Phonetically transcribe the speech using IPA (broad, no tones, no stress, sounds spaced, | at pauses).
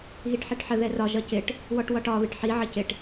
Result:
ɣ i ʈ ħ ɛ ʈ ħ ə ð ɛ r ɒ ʒ ʌ c ɪ ʈ | w ɔ ʈ w ɒ ʈ ɒ β ɪ ʈ ħ i ʕ ə c ɪ ʈ